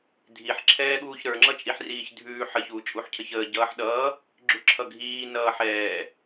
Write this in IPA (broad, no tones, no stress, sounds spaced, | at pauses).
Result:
dʱ i ħ ǁʰ ɛː ɠ uː ç ɾ ə˞ ŋ͡ǁ ʌ t͡ʃʼ i ħ r iː ç dʱ ʉː ħ ə ç uː t͡ʃʼ u ħ cʰ ə ç əː ɟ ʌː ħ ɗ ʌː | ɡ͡ǁ ʉ ǁʰ ʌ ɡʱ iː n ʌː ħ ɛː